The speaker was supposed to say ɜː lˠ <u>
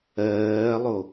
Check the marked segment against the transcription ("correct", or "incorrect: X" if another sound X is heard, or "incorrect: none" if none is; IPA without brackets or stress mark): incorrect: o